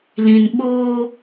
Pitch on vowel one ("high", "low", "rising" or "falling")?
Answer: low